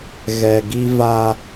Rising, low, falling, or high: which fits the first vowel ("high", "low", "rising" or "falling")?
low